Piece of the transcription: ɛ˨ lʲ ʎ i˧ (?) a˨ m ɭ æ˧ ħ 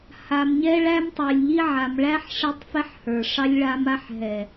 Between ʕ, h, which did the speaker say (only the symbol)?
ʕ